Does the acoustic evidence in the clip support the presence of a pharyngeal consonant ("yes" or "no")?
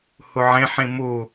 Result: yes